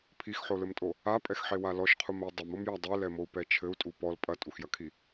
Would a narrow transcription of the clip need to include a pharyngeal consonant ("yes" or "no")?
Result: yes